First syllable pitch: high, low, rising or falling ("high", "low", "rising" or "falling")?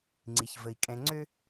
low